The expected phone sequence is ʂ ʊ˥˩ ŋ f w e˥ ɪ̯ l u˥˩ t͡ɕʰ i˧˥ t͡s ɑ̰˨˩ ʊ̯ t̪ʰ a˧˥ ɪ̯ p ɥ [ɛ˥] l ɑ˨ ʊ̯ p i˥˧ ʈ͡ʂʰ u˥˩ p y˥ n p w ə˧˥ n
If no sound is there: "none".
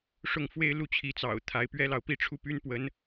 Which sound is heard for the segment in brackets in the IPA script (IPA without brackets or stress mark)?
ɛ˥